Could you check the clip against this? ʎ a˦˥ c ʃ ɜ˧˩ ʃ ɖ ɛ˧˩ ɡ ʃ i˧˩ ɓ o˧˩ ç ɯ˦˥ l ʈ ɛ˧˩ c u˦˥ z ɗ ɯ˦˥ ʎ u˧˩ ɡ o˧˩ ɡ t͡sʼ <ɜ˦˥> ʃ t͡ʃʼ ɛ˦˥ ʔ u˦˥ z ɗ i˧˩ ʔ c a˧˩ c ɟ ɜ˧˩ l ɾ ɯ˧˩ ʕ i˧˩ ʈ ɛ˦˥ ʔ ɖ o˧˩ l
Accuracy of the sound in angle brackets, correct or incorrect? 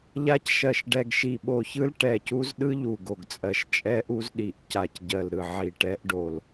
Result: incorrect